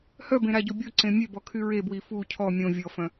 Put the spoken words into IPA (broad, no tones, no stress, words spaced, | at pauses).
hœbẽɾaɟo bʲoǀẽ mʲøbɔkʰy ɹebwi fu cʰɔ mʲõ vʲɔfœ̃